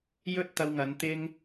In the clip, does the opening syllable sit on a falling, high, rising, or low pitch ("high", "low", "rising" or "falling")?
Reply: high